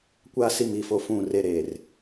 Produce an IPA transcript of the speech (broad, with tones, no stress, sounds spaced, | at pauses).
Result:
kʷ aː˦ s i˦˨ m i˦˨ f o˦ f ũ˦˨ r e˦ ɾ eː˨ r